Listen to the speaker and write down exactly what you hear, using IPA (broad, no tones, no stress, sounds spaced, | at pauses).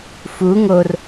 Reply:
f u ŋ o r